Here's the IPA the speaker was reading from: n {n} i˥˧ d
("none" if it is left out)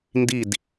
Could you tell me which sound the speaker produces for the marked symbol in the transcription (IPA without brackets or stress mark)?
d